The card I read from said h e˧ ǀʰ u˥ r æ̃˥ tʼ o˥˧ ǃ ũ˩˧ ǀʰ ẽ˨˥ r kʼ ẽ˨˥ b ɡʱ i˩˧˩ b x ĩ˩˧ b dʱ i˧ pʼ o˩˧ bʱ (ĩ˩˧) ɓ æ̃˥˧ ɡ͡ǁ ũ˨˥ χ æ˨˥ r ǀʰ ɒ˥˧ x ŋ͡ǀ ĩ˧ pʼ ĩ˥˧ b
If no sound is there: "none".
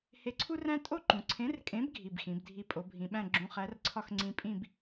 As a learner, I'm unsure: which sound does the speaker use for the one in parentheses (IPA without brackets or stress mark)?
ĩ˩˧